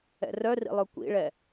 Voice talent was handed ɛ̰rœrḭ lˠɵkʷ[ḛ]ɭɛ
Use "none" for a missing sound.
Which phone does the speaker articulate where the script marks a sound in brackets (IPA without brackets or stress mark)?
ḭ